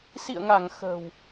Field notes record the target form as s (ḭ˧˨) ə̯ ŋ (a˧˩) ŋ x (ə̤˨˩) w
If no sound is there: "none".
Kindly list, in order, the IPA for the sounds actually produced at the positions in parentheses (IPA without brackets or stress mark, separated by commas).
ḭ˧˨, a˧˩, ə̤˨˩